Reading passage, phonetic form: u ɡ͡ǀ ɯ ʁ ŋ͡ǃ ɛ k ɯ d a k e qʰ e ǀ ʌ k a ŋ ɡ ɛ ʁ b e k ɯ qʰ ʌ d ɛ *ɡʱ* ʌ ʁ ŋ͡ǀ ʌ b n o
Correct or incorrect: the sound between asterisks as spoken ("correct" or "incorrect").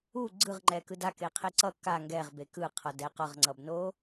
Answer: incorrect